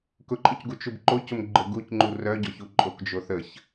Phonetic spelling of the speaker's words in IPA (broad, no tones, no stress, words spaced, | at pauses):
kʊǃʼʊcɡu t͡ʃubǃocʊm ɡ͡ǃʊɡucŋ͡ǃu rœɟɔçu ǃʼokd͡ʒoθəç